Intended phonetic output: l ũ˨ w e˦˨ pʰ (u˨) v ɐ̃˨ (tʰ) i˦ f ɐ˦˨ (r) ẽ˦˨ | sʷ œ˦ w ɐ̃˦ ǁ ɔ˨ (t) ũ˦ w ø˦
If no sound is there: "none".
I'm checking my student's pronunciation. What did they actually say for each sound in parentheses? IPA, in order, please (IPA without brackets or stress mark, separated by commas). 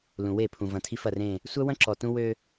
ũ˨, tʰ, r, t